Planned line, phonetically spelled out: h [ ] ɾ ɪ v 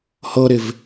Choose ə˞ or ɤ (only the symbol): ɤ